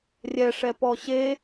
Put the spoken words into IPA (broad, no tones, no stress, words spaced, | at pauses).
rʲɛʂɛpɔ ɕe